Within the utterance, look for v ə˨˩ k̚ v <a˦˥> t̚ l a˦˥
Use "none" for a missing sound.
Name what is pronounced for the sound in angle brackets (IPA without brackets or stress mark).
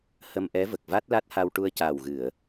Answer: a˦˥